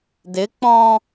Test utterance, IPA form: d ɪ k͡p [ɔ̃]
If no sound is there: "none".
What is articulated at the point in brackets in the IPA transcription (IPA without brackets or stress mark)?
ɔ̃